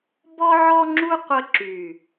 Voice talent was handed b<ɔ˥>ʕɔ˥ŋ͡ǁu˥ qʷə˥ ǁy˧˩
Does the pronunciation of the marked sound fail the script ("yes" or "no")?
no